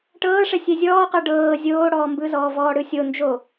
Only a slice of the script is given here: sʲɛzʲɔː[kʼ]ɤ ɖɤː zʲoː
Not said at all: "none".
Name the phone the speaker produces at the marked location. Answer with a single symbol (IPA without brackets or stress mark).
q